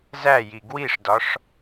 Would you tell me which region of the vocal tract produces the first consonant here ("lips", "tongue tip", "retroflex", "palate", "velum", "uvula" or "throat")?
tongue tip